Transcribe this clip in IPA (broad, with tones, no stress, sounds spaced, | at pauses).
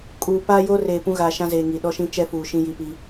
kʼ uː˨ p aː˦ j oː˦ r eː˨ p ũ˦ ɣ aː˨ ʃ ã˦ z eː˨ ŋ i˨ ɗ ɔ˦ ʃ ĩ˦ t͡ʃ ɛ˦ f uː˨ ʃ ĩ˦ j i˨ p i˦